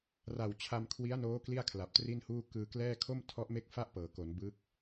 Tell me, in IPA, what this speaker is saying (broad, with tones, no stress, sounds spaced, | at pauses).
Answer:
r a˨˩ w t͡ɕʰ a˧ m kʰ w i˦˥ a̯ n oː˦˥ k l i˥˩ a̯ kʰ l a˨˩ p̚ t r i˥˩ n h uː˥˩ k ɯː˧ k l ɛː˥˩ kʰ o˥˩ m tʰ ɔ˦˥ ʔ m e˥˩ k̚ f a˥˩ ʔ p ɤː˩˦ k o˩˦ n b ɯ˦˥ k̚